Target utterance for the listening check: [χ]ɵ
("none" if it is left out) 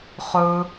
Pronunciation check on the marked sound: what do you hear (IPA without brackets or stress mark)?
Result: χ